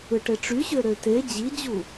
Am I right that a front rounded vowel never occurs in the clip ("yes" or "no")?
no